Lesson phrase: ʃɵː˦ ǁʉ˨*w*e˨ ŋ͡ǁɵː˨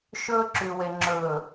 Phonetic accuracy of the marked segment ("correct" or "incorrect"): correct